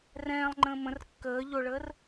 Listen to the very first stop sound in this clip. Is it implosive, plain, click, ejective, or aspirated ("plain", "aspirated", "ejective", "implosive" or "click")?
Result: click